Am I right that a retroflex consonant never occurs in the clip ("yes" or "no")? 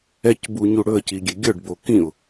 no